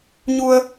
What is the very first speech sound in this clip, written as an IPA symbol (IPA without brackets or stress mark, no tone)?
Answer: ɲ